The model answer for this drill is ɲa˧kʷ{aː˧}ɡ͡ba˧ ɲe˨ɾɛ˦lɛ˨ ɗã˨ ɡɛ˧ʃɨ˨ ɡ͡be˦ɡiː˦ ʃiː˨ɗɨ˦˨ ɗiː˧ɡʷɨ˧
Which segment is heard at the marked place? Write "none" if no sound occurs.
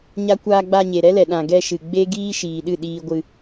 aː˧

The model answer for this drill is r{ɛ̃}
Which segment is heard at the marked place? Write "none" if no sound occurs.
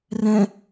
ɛ̃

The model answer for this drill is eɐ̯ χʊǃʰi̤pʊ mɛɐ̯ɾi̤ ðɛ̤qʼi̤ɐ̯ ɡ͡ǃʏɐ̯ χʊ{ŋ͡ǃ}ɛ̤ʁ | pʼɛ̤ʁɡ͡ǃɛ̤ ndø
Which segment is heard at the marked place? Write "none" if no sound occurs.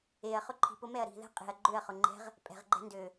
ŋ͡ǃ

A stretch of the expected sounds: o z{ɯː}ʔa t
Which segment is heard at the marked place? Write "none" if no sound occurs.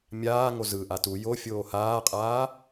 ɯ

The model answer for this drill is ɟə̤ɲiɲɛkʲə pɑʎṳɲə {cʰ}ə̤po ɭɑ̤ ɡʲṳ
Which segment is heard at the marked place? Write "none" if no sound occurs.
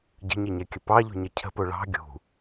cʰ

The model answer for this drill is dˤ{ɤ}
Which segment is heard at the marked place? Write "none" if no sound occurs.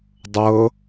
ɤ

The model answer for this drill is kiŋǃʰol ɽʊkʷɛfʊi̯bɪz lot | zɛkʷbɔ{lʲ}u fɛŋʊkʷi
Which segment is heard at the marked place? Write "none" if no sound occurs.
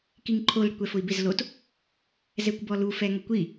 l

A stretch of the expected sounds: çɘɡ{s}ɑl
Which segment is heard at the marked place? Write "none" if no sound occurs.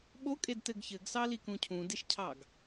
s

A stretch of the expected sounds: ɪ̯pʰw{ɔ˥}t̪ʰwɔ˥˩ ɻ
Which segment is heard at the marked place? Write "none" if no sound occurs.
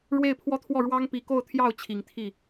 ɔ˥˧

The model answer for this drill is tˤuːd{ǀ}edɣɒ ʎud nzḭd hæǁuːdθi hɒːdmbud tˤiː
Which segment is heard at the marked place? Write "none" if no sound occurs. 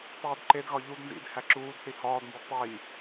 ǃ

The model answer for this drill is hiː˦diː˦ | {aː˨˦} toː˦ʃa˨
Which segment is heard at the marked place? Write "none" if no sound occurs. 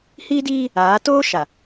aː˨˦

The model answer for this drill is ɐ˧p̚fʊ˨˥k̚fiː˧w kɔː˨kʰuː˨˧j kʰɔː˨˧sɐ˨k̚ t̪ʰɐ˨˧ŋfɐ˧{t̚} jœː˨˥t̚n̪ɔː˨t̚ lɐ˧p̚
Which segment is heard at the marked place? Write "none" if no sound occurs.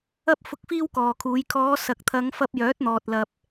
p̚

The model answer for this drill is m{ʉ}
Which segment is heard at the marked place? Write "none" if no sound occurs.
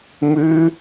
ʉ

